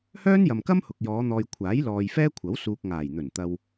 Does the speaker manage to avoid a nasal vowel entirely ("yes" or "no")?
yes